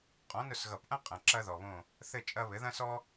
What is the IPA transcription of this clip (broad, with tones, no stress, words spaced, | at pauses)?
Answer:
qʼɔ̃˨˥nʊ˦˨s ɣʌ˨˩˦pʔɐ̃˦ qʼɐ̃˨ ǁɐ˦ðɔ˨βõ˦˨ | θɘ˦˨ t͡ʃʼɐ˦βɘ˨˥ ðɐ̃˦sɔ˦